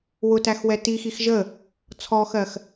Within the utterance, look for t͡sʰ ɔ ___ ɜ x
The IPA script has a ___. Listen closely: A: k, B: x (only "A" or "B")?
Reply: B